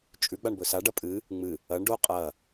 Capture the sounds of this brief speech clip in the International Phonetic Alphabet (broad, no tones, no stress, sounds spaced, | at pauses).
t͡ʃʼ ʉ ɡ͡b a ɳ b ɵ s a ɖ ɐ pʼ ɨ | ŋ͡m ɨ | ɐ ɳ ɖ o qʼ ɐ